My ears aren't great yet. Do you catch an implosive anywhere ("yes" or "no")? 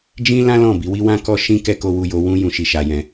no